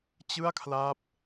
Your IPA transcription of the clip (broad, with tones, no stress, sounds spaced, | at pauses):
t͡ɕ ɯ˥˩ a̯ kʰ l a˦˥ p̚